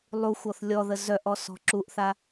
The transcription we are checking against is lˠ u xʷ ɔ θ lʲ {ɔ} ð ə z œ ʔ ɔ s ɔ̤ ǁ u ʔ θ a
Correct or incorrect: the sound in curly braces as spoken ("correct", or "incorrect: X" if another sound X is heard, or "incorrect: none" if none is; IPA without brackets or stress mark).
correct